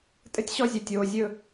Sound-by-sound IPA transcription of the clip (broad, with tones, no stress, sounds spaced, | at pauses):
tʼ ɘ˦ tʲ ɕ ɔ˦ zʲ ɵ˨ tʲ oː˨ zʲ ɵ˦